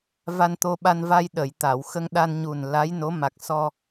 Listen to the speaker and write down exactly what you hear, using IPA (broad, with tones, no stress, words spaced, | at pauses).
va˧nt̪o˧ɓa˧nva˧j ɗə˨˩˨j t̪a˨˩˨w xə˧ŋ ɗa˧n ɲu˨˩n la˧˥jno˧˥ ma˨˩k̚sɔ˧